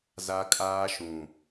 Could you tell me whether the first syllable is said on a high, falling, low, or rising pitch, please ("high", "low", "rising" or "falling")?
high